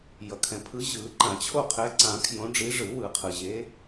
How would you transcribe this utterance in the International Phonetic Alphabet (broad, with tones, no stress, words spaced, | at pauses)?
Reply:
jʌ˩kʰɛ̃˩pʰɯ˨˦ ʑɯ˨˩˦ǃã˨˩˦t͡ɕʰo˥˨ qʰɛ˨˦ǀã˨˩˦ kʰjõ˨˦ɖ͡ʐi˨˦ ʐɯ˨˩˦wɯ˨˩˦qʰɯ˩ʑe˨˦